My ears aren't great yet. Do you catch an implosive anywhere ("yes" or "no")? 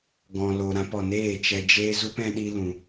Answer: yes